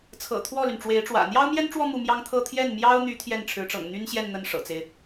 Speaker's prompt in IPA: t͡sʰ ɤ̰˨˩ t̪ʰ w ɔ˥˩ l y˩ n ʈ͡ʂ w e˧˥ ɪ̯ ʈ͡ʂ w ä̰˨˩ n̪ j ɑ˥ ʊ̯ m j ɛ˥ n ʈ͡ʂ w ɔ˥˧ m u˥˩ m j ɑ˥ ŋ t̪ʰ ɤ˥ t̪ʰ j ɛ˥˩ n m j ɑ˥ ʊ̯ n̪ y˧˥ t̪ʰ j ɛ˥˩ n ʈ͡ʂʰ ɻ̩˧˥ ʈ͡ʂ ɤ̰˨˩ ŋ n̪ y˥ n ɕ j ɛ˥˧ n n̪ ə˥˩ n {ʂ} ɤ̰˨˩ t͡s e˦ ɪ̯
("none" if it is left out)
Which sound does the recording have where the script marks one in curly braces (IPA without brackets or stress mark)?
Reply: ʂ